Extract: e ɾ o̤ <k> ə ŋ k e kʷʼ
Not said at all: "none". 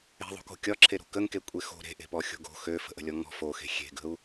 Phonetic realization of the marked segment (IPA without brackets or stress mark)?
k